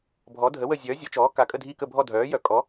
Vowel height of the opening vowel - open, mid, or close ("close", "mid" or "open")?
mid